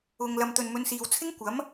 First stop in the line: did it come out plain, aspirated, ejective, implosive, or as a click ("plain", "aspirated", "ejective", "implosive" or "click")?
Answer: plain